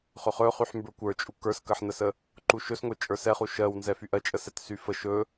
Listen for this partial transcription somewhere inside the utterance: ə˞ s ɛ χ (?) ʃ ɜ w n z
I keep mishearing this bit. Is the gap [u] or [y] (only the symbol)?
u